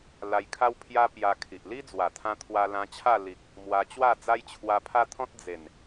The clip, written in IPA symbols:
l a˧ j kʰ a˦ w pʰ j a˦ p j a˧ kʰ i˨ ʔ l i˦ d͡z w a˨˩ t̪ʰ ã˧ t̪ʰ w a˧ l ã˧ t͡ɕʰ a˥˧ l i˨ k̚ | m w a˧ t͡ɕ w a˥˧ d͡z a˦ j t͡ɕʰ w a˧ pʰ a˦ t̪ʰ ɔ̃˦ t̚ d͡z e˨˩ n

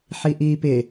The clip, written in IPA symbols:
ħ i ʔ iː p ɪ

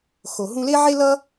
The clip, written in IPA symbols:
x o˨ ɦ ũ˧ l e˦ ʕ e˦ l ʌ˦

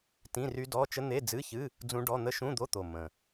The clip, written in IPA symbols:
t ĩ˧˥˧ r y˦˥ d ɔ˧˥˧ t͡ʃ ə˦˥ n̪ e˧˥˧ d͡z ɨ˧˥˧ ç ɨ˧˥˧ | d͡z ũ˦˥ ɖ ɔ˧˥˧ n̪ ə˦˥ ʃ ũ˧˥˧ d̪ o˧˥˧ t̪ o˨˩ m ə̃˨˩

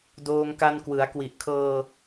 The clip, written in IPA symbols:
d oː˧ ŋ k a˧ n k w ɯ˩˦ a̯ k w i˨˩ ʔ kʰ ɤː˧

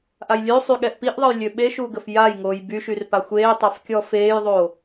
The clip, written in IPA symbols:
ʔ a j lʲ ø sˤ y ɠ ɛ ʔ p i ʔ ðˤ ə j lʲ ø ɓ e ʃ uː ɡ ə f j a j ŋ oː j b y ʃ y r p a xʷ eː tˤ a f kʲ ɔ f eː j ðˤ oː

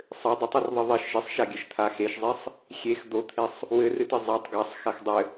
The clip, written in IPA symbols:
sˤ ɘ dˤ o tˤ ɨ r ðˤ ɘ ðˤ ɪ ʃ ɪ sˤ ʃ a ɡʲ ɘ ʃ t̪ʰ a x e ʃ zˤ e sˤ | xʲ e x d̪ o t̪ʰ e sˤ | w ɘ r ɨ t ɨ zˤ a tˤ ɡ a sˤ x a x dˤ ɘ

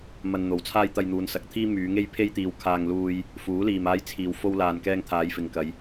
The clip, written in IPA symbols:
m ɐ˧ n n̪ o˨ w t͡sʰ aː˥ j t̪ ɐ˧ j n̪ uː˨˧ n s ɐ˨ k̚ t̪ʰ iː˥ m yː˨˧ ŋ e˥ j pʰ e˥ j t̪ iː˧ w kʰ aː˧ ŋ l uː˧ j | f uː˨˥ l iː˨ m aː˧ j t͡sʰ iː˨ w f o˧ w l aː˨ n k ɛː˧ ŋ t̪ʰ aː˨˧ j f ɪ˨ ŋ k ɐ˨˧ j

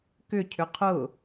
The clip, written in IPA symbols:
k ʏ cʰ ʏ qʰ ʊ

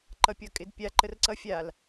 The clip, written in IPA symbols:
ǃ ʌ pʲ ʌ kʼ ɪ d pʲ a ǃ ə r ǀ ʌ fʲ a l

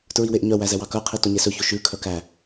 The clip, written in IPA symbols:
t ɹ i w e ʔ ɲ œ w æ z ɛ w ɑ k œ qʰ i t o ɲ e s ɵ ç o ʃ ʉ kʰ œ k æ

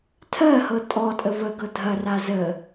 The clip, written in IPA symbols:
tʰ ɜ h ɤ tʼ ɔ tʼ ə v ə ɡ ɤ dʱ ɐ r a z ə

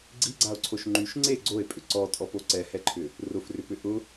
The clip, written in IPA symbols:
ɡ͡ǀ i ɡ͡ǀ a o̯ ǀʰ o ʃ ŋ͡ǃ y ʃ ŋ͡ǀ e ɡ͡ǀ o e̯ pʼ ʏ ǀ ɔ tʼ ɔ p o ǀ ɛ h ɛ ǃʰ ʏ | r ʊ f r ʏ p ʏ ʔ ʊ

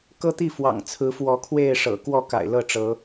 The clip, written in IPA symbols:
k ɤ˦ t̪ i˥˨ f w ɑ̰˨˩ ŋ t͡sʰ ɹ̩˨˦ f w ɔ˨˦ kʰ w e˥˨ ɪ̯ ʂ ɤ̰˨˩ k w ɔ˥˨ k a̰˨˩ ɪ̯ l ɤ˥˨ ʈ͡ʂ ɤ˨˦

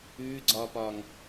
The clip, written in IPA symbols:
ʉː ɡ͡ǀ ɒː p ɒː ŋ

